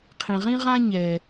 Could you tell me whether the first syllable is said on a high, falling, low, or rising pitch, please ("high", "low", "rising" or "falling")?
low